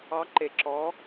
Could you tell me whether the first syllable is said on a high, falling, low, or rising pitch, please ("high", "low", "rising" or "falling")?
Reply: rising